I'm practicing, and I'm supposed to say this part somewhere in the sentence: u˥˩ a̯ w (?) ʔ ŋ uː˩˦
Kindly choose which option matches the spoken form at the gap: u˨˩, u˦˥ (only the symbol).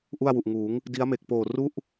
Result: u˨˩